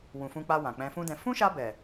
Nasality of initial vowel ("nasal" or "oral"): nasal